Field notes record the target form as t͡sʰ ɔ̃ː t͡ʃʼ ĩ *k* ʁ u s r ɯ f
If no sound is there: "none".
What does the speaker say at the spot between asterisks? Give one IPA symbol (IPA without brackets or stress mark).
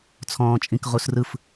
k